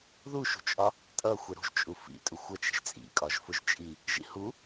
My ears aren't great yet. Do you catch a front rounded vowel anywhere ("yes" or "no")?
no